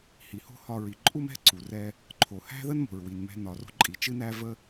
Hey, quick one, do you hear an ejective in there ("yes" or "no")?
yes